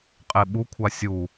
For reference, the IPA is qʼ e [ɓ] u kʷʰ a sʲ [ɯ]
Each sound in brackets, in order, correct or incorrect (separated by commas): correct, incorrect